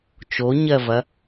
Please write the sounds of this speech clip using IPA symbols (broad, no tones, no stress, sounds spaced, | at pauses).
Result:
t͡ʃ o ɲ ɜ v ɐ